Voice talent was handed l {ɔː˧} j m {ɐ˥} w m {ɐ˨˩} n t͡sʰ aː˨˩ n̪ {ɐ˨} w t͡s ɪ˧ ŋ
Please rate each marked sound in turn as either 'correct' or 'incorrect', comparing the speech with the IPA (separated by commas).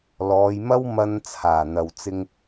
incorrect, correct, incorrect, correct